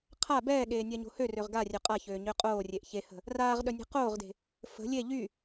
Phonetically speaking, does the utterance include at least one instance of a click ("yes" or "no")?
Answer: no